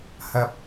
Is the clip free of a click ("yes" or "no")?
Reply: yes